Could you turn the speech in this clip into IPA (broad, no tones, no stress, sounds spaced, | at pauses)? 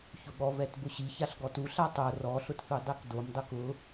ç ʊ ɠ ɔ β ɛ t b ʊ ɕ i ç a ɬ ɡ ɔ t u ɬ a tˤ o r ɔ ɬ ʊ t θ u dˤ ɛ k d o m dˤ ʊ k ʊ